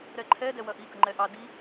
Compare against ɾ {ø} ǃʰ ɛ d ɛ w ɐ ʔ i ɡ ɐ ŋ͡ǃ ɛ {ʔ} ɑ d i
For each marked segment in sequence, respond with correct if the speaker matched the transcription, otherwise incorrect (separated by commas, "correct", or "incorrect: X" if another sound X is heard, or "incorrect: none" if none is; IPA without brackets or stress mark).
incorrect: ɛ, correct